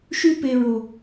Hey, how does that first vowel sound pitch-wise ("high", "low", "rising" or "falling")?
high